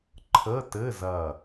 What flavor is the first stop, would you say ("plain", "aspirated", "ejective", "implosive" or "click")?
click